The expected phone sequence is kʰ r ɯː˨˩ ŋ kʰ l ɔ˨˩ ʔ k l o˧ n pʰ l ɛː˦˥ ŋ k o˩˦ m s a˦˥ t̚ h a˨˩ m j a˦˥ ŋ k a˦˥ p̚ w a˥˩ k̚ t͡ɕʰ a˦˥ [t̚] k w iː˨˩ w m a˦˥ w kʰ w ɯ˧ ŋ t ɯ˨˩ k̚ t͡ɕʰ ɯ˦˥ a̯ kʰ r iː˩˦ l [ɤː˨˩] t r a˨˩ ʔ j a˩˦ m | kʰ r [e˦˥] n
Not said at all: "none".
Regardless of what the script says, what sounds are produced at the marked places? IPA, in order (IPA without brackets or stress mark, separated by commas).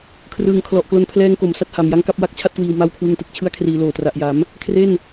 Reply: t̚, oː˨˩, e˥˩